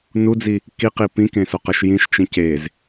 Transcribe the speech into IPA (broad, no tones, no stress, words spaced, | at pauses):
nud͡zi | kiqi pĩkẽsoqʌʃ jĩʃt͡ʃĩ cez